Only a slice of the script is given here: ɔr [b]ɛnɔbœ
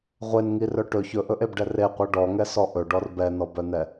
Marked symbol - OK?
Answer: yes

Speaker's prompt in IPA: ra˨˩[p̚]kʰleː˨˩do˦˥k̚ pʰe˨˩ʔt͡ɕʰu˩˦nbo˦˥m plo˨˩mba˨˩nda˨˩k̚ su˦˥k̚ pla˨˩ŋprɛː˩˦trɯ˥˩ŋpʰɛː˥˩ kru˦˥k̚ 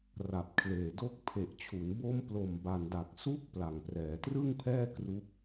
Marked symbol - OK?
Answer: yes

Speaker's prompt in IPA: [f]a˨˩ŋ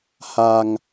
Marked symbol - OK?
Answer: no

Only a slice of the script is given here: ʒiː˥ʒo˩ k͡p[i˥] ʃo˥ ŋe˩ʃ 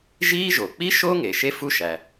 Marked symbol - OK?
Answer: yes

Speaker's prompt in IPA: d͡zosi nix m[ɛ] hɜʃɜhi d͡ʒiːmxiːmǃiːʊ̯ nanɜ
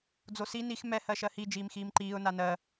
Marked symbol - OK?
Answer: yes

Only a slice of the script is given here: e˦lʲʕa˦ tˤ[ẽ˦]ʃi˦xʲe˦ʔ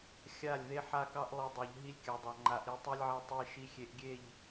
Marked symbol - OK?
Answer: no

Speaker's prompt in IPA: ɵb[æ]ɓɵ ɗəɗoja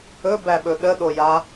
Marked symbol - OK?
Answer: yes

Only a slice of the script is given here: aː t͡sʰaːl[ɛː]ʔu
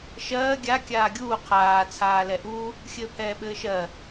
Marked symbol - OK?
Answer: no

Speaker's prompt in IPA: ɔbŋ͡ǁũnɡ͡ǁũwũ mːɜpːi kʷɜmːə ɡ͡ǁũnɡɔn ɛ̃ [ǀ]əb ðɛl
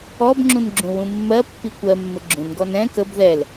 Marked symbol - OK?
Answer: no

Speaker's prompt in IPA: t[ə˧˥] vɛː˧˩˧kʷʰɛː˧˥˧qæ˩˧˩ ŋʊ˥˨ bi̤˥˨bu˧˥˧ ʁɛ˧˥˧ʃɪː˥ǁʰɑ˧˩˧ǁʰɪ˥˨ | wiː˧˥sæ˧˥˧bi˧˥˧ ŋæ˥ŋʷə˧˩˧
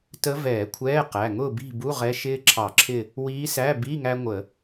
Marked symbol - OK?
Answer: yes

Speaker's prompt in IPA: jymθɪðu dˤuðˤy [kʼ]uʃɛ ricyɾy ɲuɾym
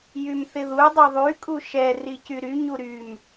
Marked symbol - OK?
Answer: yes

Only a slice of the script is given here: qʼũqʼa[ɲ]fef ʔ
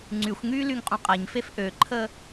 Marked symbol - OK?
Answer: yes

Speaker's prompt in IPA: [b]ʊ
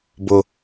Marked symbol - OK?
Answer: yes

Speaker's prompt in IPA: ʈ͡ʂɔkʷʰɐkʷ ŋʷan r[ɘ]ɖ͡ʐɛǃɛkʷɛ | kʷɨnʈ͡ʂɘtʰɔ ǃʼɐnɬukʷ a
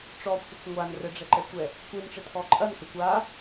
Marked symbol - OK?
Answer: yes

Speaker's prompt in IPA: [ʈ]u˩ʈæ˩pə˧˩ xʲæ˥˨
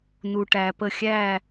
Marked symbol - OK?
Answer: no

